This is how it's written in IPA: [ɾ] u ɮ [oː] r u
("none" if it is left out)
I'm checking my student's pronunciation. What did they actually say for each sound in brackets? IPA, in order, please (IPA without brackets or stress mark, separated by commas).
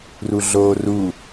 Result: r, oː